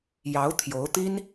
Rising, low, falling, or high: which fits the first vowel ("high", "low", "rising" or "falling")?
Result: rising